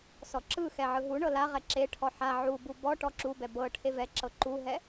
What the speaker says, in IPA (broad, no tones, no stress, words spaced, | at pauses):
sɔǁɯxɛ ʕɯɦuɳɤ laʁɛ ǁeʈʰɔ ħa ʕubu bɔʈɔ ǁubɛ bɤ ʈʰevɛǁɤ ǃuɦɛ